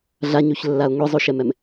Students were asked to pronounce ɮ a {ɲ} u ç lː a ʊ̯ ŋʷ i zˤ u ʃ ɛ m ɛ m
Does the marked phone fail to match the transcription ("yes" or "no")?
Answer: no